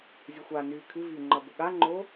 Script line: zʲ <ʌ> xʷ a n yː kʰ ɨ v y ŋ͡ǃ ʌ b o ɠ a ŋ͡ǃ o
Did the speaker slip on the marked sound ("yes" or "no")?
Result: yes